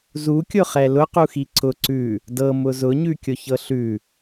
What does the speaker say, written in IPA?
zukʲʊχɛ lʊquxi ǀʊ ǀʉ | dɤmʊ zʊɲʉkʲʊçɤ ɬʉ

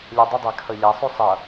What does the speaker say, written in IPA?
lʲɛdˤʊdˤæ kʰʌʎæsˤu sˤʌ

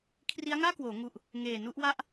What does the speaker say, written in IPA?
kʰri˦˥a̯ŋaː˥˩kwoː˩˦ ŋu˨˩ʔ | ŋeː˨˩nu˥˩ʔ wa˦˥ʔ

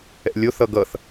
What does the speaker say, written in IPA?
ɛ̰lʲoθ ʌɡʌθ

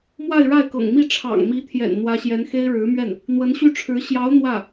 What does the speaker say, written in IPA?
mwa˥˧ɪ̯ɻa˥˩ɪ̯kɤ̰˨˩ŋmi˥˩ ʈ͡ʂʰɑ̰˨˩ŋmi˧˥t̪ʰjɛ̰˨˩n n̪wä˧˥ɕjɛ˧˥nxe˥ɪ̯ ɻɻ̩˧˥mɥɛ˥˩n | n̪wə˧˥nɕy˥˩ʈ͡ʂʰɻ̩˧˥ ɕjɑ˧˥ʊ̯ n̪wä˥˩

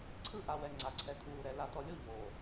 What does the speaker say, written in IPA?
ǀʰɯ˦˨ʔa˨wɛ˨ ŋ͡ǀa˨ǀʰɛ˨tʰuː˨ɾɛ˨ la˨tɔ˨lʲo˦˨ ʎoː˨

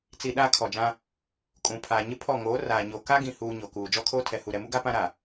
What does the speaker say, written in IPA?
t͡si˨ ɗaː˦kʰɔ˨d͡ʒã˦ | kʼũ˨pʰaː˨ ɲɪ˦pʰɔ˦˨ ŋoː˨˦raː˨ɲo˨ ka˦ɡĩ˨huː˨ ɲo˨kuː˨ d͡ʒɔ˦kʰoː˦tʰɛ˨ hu˨ɾɛ˨mu˦ɡa˦ pã˦ɾa˨

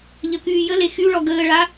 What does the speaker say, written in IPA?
ʎəkyːjəle xyɭɔ ɡəːɭa

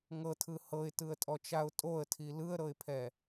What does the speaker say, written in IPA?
ŋɤtʰɯ hɤɪ̯tɯə̯tʼɔt͡ʃaʊ̯ tʼoə̯tʰi lɯə̯ɾɤɪ̯pʰɛ

